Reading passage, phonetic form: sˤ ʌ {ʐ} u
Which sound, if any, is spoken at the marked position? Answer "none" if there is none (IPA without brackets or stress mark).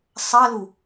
l